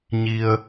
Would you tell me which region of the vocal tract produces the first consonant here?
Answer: palate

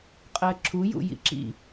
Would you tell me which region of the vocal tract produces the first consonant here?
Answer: uvula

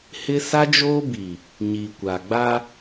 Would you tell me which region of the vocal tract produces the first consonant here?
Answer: throat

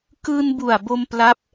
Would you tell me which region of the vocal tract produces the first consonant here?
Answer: velum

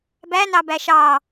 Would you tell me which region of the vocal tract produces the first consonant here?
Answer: lips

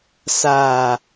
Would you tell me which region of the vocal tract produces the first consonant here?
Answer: tongue tip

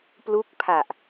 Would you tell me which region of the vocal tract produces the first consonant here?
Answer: lips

